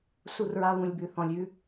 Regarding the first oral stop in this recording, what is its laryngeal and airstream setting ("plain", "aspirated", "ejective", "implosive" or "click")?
plain